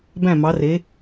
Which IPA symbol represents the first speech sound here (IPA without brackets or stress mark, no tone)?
b